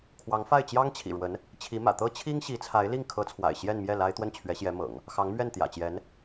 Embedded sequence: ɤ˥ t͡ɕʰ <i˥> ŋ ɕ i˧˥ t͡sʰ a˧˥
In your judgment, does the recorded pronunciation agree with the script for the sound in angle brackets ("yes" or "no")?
yes